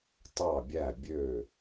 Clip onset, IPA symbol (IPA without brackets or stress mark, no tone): tˤ